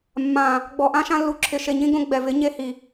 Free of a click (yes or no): no